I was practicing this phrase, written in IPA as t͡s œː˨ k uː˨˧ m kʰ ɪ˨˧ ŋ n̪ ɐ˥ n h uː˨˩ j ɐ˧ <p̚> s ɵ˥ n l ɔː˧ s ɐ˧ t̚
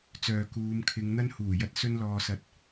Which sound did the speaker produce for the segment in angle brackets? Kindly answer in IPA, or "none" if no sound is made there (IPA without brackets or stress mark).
t̚